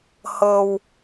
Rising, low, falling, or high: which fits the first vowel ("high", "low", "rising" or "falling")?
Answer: low